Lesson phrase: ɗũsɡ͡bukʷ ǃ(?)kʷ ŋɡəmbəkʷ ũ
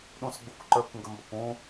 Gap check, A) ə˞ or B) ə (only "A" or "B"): A